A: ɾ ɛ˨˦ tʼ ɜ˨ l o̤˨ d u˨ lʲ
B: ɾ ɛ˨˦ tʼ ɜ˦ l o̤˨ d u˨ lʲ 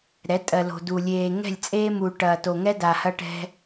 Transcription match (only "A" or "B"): A